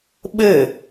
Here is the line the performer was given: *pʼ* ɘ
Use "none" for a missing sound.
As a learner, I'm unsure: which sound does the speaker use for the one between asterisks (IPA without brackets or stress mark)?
ɓ